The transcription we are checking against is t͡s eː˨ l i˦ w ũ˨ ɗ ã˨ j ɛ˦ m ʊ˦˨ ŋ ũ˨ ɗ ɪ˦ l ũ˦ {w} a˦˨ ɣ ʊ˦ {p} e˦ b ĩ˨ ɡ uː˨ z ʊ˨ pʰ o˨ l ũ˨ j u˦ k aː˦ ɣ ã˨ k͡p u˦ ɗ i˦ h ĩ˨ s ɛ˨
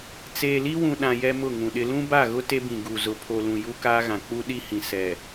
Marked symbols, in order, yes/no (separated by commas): no, no